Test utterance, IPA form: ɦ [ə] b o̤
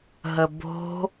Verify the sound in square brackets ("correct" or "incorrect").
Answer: correct